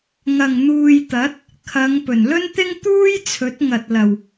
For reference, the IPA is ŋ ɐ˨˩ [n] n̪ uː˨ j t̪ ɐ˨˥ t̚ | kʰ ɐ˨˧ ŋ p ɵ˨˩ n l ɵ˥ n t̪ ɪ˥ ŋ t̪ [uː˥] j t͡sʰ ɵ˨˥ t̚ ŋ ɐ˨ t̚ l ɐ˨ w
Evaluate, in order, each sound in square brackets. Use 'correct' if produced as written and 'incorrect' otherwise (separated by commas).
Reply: incorrect, correct